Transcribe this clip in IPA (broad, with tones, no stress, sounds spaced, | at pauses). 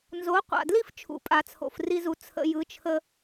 n z o˩˥ qʷ a̰˩ d l i˥ f t͡ʃʰ ṵ˩ pʼ a˩ t͡sʰ o̰˩ f r i˧ z u˩ t͡sʰ ə̰˧ j ɯ˩˥ t͡ʃʰ ə˧